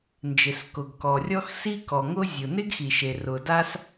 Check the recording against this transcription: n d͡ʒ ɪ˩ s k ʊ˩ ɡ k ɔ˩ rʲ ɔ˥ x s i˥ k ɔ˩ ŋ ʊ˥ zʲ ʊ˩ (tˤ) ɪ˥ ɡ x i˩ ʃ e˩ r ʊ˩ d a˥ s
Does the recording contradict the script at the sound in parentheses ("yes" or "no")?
yes